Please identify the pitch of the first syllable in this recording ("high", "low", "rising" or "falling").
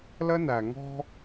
high